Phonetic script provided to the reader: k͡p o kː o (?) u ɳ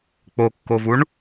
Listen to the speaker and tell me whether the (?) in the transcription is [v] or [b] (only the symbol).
v